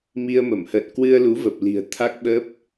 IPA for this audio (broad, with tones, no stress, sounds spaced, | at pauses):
m i˧ ə̯ m ə˧˩ m h ə̰ː˧˨ n k w ɨ˧ ə̯ l u˨˦ v ə˨˩ p̚ l i̤˨˩ ə̯ t̪ʰ a˦˥ k̚ ɓ ə˦˥ p̚